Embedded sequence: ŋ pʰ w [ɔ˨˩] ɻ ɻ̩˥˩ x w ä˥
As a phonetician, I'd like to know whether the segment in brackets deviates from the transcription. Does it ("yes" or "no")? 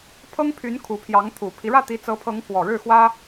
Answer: no